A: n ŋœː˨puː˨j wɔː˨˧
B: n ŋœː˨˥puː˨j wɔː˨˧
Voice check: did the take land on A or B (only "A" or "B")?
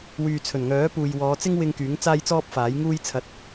B